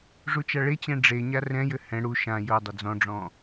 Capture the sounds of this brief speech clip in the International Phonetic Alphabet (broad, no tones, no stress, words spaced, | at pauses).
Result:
ʐut͡ʃaɭet͡ɕɛ̃ ɖ͡ʐeɲa rɛ̃jɘ hɛ̃ ɽu ʃã jɤdˤɘ d͡zɔ̃ɖ͡ʐɔ̃